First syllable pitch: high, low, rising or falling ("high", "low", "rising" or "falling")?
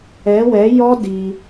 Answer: rising